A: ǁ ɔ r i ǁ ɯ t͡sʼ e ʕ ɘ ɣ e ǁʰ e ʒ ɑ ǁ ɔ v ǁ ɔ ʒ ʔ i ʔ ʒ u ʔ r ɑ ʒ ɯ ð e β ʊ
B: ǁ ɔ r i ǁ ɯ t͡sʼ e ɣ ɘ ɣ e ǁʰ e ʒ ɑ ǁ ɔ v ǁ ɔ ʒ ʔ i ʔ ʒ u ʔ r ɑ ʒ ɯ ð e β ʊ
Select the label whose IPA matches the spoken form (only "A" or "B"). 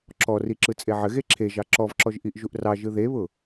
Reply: A